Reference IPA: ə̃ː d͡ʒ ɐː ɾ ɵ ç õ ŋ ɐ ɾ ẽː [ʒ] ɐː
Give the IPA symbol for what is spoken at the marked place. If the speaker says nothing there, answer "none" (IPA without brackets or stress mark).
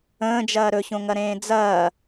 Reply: d͡z